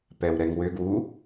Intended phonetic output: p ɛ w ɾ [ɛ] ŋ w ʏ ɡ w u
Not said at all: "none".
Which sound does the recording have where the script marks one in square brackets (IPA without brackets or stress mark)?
ɛ